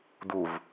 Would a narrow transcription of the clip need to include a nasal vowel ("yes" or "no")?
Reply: no